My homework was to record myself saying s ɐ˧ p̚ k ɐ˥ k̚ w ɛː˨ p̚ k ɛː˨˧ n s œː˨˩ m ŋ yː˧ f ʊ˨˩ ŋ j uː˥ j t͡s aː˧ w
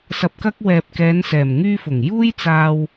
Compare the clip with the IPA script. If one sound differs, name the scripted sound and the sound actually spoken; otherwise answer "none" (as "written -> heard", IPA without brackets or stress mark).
œː˨˩ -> ɛː˨˩